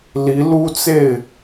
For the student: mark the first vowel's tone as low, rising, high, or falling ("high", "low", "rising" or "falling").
rising